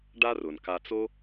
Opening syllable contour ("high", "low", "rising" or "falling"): high